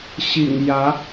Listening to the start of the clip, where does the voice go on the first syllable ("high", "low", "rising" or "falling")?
low